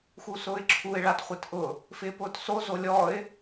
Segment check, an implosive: absent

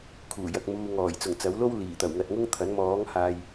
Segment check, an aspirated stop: present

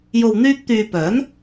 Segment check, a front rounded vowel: present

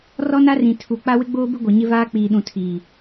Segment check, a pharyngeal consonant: absent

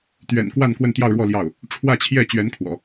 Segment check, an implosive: absent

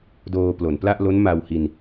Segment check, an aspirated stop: absent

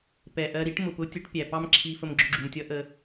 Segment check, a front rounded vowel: absent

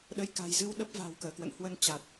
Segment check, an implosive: present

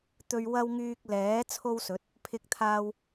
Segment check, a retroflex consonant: absent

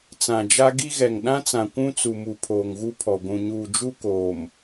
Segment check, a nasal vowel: present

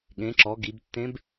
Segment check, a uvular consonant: absent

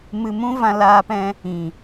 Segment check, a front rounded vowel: absent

